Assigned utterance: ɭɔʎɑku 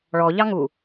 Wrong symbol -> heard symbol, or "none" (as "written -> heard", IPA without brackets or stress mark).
k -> ŋ